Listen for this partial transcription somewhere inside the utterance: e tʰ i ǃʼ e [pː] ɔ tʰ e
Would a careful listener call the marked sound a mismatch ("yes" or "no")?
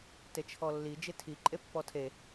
no